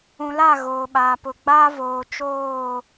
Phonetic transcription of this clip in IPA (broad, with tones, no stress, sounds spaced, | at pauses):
ũ˨ l a˦˨ ɣ oː˨ ɓ aː˨ p ʊ˨ ɡ͡b aː˦ v oː˨ t͡ʃ oː˦˨